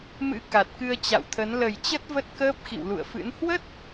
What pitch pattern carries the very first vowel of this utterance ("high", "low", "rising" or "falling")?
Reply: rising